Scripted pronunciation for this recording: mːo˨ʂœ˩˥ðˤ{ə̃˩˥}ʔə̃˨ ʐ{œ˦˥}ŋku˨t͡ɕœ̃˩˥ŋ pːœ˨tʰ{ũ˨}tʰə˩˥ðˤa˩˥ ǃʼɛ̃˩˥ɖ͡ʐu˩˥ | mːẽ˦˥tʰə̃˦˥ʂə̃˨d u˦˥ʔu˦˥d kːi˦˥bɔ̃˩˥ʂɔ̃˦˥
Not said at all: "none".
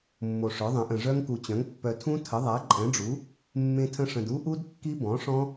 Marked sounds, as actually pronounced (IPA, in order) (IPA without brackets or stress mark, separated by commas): ə̃˩˥, œ˦˥, ũ˦˥